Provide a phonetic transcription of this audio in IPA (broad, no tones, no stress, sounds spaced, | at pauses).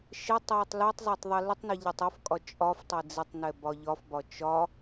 ʃ ɛ tˤ j ɛ tˤ l ɛ tˤ zˤ e tˤ ðˤ i l ɪ tˤ n e ʎ ɛ tˤ ɒ f kʼ ɒ t͡ʃʼ ɒ f tˤ e d͡z ɪ tˤ n ɛ b ɒ ʎ ɒ f b ɒ t͡ʃ ɒ